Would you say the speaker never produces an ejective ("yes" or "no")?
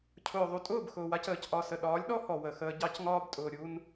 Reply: no